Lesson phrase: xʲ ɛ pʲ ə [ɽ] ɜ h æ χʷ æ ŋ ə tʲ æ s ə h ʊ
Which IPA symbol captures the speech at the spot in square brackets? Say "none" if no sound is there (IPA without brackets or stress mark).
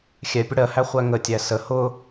ɽ